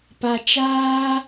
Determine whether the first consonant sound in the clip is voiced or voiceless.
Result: voiceless